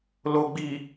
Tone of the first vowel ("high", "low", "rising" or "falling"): low